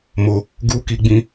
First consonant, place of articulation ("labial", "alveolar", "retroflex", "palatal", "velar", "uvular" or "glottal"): labial